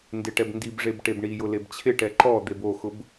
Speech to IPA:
n d ɪ ʈ ɛ b n d i b ʐ e b ʈ e b ɳ i j ʊ l e b t͡ɕʰ ɪ ʈ ɛ ǃ ɔ d̪ e b o x ʊ b

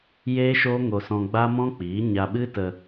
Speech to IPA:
j eː˦ ʃ oː˦ ŋ o˧ s ɔ̃˧ ɡ͡b a˦ m ɔ̃˦ k͡p iː˨˦ ɲ a˧ ɓ ɨ˦ t ə˧

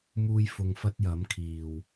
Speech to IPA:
m uː˧ j f ʊ˨ ŋ f ɐ˥ t̚ j ɐ˨˥ m kʰ iː˨˩ w

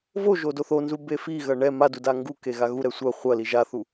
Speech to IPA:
v o ʒ o d o θ o n z u b e f i ɣ ɐ ɳ ɛ m a d u d a ŋ ɡ u k e ɣ a ɣ u ɾ ɛ sʷ ɐ χʷ ɐ l i ʒ a θ u

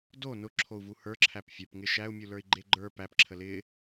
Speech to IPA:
d o n ʊ ǁʰ o u̯ v u h ə˞ ǁʰ æ p fʲ ə˞ p ŋ ɪ ʃ æ u̯ mʲ u l ə˞ i̯ ɡ͡ǃ e ɡ͡ǃ ə˞ p æ p ǁʰ ə l ɪ

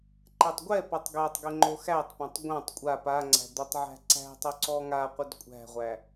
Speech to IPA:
ǃ ɛ tˤ ɡʷ ɛ p ɔ tˤ ɡ æ tˤ ɡ ə ŋ͡ǃ o x æ tˤ p ã tˤ ɡʷ ã tˤ kʷʼ a p a ŋ͡ǀ æ̤ d̪ ɵ tˤ ʕ æ̤ ǀ æ̤ tˤ y ǀ ɔ ŋ a qʷ ə d kʷʼ æ̤ ʁʷ æ

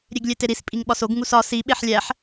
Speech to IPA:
ɾʲ e ɡ lʲ e t e ɾ i s pʼ i ŋ ɓ ɒ s o ɡ ŋ u s ɒ s i ɓ e ħ lʲ æ ħ

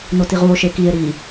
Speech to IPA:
n o t i ʁ u o̯ ʃ e k i e̯ ɾ i

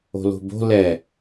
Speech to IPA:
o̤ l o̤ b o̤ l ɛ

